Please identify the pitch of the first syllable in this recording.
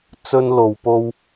high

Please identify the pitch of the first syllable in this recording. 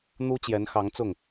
high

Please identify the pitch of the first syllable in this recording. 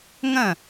falling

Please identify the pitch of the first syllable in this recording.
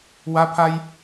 high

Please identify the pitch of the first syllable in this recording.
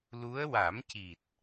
rising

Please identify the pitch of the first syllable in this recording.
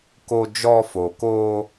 high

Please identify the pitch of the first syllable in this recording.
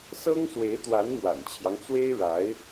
high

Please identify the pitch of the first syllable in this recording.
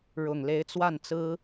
low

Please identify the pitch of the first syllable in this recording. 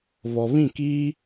low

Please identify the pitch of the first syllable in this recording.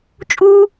high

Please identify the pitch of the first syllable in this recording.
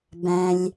low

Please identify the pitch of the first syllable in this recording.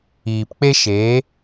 low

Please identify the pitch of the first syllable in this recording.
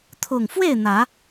low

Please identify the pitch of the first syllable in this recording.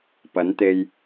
rising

